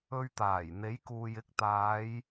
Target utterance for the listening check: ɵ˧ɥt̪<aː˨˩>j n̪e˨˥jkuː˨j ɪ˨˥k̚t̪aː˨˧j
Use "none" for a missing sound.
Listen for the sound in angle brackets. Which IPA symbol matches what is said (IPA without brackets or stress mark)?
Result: aː˨˩